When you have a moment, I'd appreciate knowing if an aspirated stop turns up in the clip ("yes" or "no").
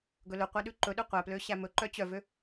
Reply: no